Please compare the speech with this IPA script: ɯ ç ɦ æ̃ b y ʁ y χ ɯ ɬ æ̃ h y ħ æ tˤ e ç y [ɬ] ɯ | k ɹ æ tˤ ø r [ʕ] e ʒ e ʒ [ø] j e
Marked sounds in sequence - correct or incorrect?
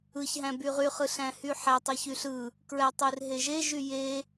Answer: correct, incorrect: ɦ, incorrect: y

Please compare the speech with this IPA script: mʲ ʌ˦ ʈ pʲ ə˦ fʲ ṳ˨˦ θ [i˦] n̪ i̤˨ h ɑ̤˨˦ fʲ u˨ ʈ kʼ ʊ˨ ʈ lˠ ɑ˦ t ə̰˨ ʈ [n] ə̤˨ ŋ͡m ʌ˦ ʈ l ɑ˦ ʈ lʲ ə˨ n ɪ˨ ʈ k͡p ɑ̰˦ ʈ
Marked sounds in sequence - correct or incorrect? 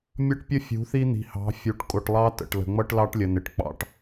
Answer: correct, incorrect: l

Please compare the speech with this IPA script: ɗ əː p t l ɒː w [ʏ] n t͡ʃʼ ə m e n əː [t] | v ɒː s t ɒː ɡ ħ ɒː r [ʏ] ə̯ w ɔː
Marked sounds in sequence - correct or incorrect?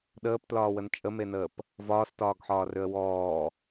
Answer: incorrect: ə, incorrect: p, correct

